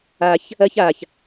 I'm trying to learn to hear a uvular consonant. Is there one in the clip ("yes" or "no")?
no